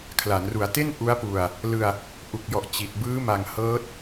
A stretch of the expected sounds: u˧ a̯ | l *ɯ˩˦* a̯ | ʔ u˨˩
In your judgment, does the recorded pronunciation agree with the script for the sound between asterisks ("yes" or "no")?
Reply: no